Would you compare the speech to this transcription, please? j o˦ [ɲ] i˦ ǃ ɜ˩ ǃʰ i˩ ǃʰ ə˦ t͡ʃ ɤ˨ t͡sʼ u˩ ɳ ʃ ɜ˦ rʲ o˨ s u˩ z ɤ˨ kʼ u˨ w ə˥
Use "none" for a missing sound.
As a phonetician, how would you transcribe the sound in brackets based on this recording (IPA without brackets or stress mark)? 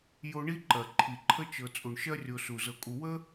ɳ